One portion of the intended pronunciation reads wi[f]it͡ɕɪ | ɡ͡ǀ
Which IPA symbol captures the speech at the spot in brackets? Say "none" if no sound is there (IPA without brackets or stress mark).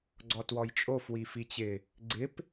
f